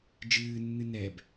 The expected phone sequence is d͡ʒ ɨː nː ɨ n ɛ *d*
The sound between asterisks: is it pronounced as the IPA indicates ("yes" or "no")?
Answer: no